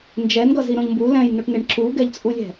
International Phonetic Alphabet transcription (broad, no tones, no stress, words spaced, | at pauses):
nd͡ʒɛnɡʌ ziɾõʎmbu lɛ̃jnoʈneɳ ǁuɡɛʎt͡sʼulʲɛ̤